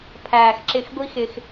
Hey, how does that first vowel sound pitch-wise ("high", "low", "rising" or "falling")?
low